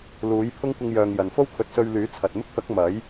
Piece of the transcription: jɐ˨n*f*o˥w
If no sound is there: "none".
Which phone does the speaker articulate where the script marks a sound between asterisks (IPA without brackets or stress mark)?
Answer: f